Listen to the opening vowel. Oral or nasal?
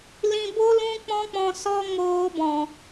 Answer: nasal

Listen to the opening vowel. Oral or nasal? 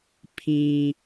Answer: nasal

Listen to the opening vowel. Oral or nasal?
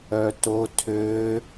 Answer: oral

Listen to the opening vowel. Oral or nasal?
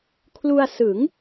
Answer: oral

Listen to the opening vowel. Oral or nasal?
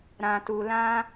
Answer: nasal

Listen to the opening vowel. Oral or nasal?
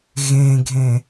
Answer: nasal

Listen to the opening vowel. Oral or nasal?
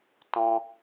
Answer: nasal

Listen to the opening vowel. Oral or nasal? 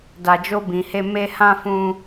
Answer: oral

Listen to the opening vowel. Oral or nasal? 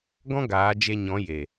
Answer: nasal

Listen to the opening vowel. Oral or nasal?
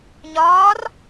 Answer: oral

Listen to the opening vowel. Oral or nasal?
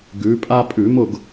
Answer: oral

